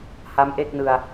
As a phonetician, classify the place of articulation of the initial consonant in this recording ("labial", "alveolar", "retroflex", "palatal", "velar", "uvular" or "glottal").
glottal